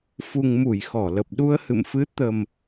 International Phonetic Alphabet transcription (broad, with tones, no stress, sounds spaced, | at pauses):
f u˨˩ ŋ m u˧˩ j x ɔ˧˩ l ə˨˩ p̚ ɗ u˧ ə̯ h ɨ̰˧˨ m f ɨ˨˦ t̪ ə˨˩ m